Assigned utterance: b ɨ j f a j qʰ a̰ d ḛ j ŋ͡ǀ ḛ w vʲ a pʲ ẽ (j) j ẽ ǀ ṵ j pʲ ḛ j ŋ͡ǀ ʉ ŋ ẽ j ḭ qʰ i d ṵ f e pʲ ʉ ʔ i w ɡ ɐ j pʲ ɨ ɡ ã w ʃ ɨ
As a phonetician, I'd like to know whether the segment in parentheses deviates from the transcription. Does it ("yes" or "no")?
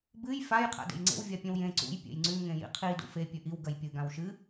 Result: yes